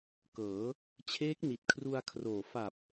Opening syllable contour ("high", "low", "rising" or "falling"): rising